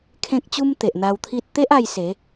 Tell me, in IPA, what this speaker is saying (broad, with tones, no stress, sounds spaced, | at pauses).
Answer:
kʰ ẽ˦ k̚ t͡ɕ u˦ m t̪ e˨ ʔ n̪ a˧ w t̪ʰ i˦ t̚ t̪ e˦ ʔ a˧ j s e˨˦